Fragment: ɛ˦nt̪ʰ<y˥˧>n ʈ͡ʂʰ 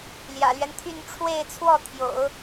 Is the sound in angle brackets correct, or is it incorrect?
correct